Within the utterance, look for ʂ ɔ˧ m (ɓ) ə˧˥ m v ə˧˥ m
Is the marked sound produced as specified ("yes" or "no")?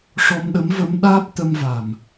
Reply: no